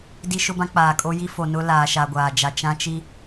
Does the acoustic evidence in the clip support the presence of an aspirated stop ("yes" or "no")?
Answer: no